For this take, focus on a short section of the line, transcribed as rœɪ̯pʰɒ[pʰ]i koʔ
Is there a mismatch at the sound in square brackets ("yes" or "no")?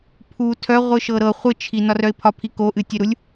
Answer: no